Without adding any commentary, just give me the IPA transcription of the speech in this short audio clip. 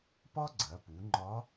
p ɒ˥ ɡ͡ǀ ɐ˩˧ p u˩˧ ŋ͡ǃ ɒ˧˥

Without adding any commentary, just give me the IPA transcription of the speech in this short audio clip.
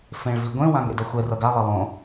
f ẽ ɭ v i ɡʷ ẽ w ã ŋ ḛ d ʌ xʷ ɛ r ʌ ɡ a lˠ ʌ lˠ õ

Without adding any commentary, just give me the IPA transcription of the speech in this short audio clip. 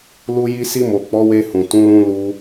l u˧ j i˧ s i˧ m o˨ k͡p ɔ˨˦ w e˧ h ũ˨ t ũ˨˦ l ũ˧ l u˧

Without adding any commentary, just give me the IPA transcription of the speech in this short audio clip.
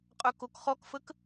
qʼ œ k o k χ ɔ k f ə k

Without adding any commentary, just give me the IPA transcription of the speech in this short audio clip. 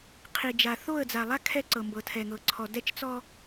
qʰ i˨ d͡ʒ a˨ θ o˦˨ ə̯ d͡z a˨ lˠ a˦ kʰ ɛ˦ ǀ ɤ˨ m b ɤ˨ tʰ ɛ˨ ŋ ɤ˨ ǀʰ ɔ˨ d ɛ˦ t͡ʃ t͡s ɔ˦

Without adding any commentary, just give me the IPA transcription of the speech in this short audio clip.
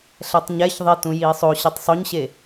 ɬ ɛ tˤ ɲ ɛ ç ðˤ e t ũ j iː sˤ o ɕ i tˤ sˤ o ɲ ɕ e

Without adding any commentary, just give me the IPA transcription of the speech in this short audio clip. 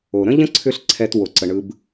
o˨ ɾ ə̃˦ ʎ ə̃˦ ǀʰ ʏ˦ ɬ ǀʰ ɛ˧ t w o˧ ǀ ə˧ ɳ ɯ˦ b

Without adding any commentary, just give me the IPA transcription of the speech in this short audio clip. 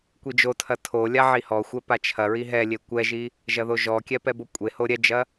kʷ i d͡ʒ o tʰ ɐ tʰ o lʲ a ʕ i h ɔ xʷ ɛ p a t͡ʃʰ ɐ ɹ i ɦ ɛ lʲ e kʷ ɛ ʒ i | ʒ ɐ ð o ʒ ɔ kʲ ɛ p ɛ b o kʷʼ e h o ɾʲ ɛ d͡ʒ ɐ

